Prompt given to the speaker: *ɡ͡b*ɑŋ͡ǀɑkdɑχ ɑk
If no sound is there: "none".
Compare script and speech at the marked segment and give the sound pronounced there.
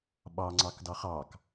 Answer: ɓ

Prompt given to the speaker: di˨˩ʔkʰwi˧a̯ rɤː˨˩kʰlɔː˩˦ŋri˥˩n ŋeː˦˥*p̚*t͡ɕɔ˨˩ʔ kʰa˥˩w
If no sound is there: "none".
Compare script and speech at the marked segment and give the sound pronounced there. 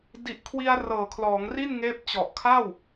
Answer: p̚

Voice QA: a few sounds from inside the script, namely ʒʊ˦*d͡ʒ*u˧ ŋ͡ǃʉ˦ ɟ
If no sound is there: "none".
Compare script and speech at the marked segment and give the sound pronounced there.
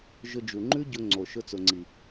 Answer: d͡ʒ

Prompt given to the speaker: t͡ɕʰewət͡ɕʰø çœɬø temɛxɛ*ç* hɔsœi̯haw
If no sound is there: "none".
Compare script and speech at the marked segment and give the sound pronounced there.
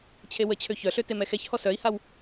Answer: ç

